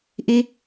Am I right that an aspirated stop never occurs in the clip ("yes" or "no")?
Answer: yes